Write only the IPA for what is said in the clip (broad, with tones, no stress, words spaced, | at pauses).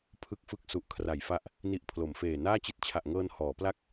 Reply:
pʰɯ˥˩k̚fɯ˥˩k̚ su˨˩ʔkʰra˩˦jfa˦˥ʔ | ni˨˩ʔ pʰlo˩˦mfeː˨˩ naː˥˩t͡ɕi˦˥t̚t͡ɕʰa˨˩ʔŋɤː˧n hɔː˩˦pla˥˩k̚